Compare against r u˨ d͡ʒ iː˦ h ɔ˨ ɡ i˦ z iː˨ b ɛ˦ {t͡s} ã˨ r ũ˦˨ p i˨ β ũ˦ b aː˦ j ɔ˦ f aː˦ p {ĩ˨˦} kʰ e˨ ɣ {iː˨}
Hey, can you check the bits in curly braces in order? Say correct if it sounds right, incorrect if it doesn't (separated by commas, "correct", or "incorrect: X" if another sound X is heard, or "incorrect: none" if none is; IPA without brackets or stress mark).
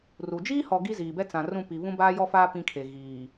correct, incorrect: ĩ˦, correct